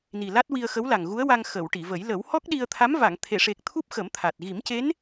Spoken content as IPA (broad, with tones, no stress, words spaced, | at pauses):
ni˨˩la˦˥t̚wi˧ə̯ xə˧˥wla˨˩ŋɣu˧˥ə̯wa˧ŋ xə˨˩˨w ʈi˨˩˨və˨˩˦j lə˨˩˦w hɔ˦˥k̚ɗi˧ə̯t̪ʰa˧˥m va˨˩˨ŋt̪ʰe˨˩˨ʂe˨˩k̚ t̪ʰu˦˥p̚xə˨˩˦mt̪ʰa˨˩t̚ ɣi˨˩˦mce˧˥n